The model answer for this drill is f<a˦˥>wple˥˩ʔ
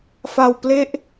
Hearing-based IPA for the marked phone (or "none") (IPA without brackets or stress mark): a˧